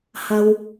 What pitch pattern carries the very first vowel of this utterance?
high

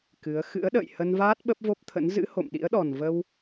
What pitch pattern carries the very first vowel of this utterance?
rising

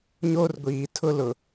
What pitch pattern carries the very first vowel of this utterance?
high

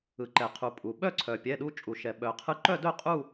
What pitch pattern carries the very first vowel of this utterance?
low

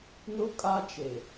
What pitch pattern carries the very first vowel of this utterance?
high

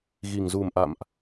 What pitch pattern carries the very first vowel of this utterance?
low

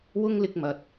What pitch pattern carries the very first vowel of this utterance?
high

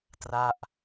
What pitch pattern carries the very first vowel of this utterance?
falling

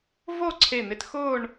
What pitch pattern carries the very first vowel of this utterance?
falling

